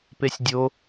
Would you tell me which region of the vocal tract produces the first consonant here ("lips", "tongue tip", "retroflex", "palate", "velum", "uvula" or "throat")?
lips